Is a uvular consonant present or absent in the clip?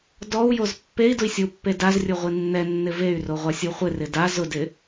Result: present